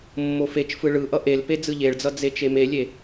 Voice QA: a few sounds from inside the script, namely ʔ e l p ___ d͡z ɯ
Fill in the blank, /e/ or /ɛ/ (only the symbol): e